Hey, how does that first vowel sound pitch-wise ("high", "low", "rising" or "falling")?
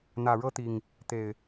low